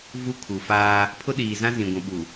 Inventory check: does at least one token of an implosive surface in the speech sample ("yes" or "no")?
yes